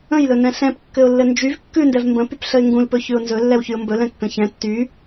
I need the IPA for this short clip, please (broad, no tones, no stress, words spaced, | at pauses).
ə̃jlɵnɛ̃ ɬɛ̃pkːɘʊ̯lːɘ nd͡ʒyv kːʉndɛv mbə̃ pypɬəɪ̯ŋɡũlpɵ çʉʊ̯nzɵ lːɛwçyʊ̯mbɵlɛ̃ kːə̃çɛ̃ tːy